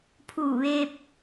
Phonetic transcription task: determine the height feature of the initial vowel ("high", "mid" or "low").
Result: high